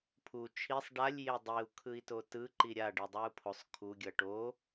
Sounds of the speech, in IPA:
pʰu t͡ʃʰisˤ ɖalʲ jedˤiu̯ kʰɯi̯totɯ ǃiɾʲa ɖidˤɯu̯pʰosˤ kʰu ɡʲʌʈo

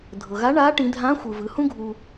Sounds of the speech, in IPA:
dʱɤ˩ɣa˧˥ ɳa˧˥ ʈĩ˩˧dʱã˧˥xʷɯ˩ vɯ˩˧hũ˥ɡʱu˧

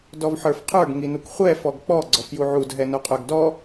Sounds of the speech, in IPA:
dɔvħə˞fqʰə˞ɡ ŋinukχʷɛ fɔɡk͡pɔ ɡ͡ǀɔfjuʕud ɦɛnoqʼə˞ɡdɔ

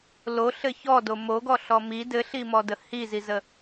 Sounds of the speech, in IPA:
loɬɘ çɔdo moɡɔɬɔ mi dɘɬimɔdə hizizə

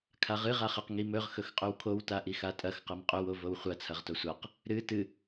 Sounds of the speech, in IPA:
kʰaʁɨ ʁaχɐq ŋimɵʁ xɵxqʼɵwkʰow taʔixatʼɐx qɐmqʼɵw ovowχʷɐ t͡sʰɐʁtosʷaq | ɾɨ tɨ

